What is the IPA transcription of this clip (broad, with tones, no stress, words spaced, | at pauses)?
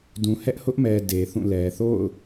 dũ˨hɛ˦ʔhʊ˦ʔmɛ˨ de˨θũ˦˨lɛ˨ θo̰˦˨ʊ̯